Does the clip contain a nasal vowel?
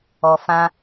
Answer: yes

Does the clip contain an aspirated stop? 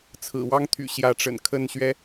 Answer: yes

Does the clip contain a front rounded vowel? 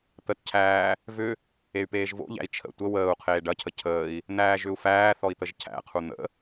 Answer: yes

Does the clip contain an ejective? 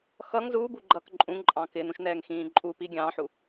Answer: yes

